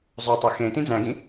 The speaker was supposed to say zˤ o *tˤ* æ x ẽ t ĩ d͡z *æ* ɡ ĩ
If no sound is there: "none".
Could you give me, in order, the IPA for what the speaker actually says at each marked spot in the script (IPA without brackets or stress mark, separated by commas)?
tˤ, æ̃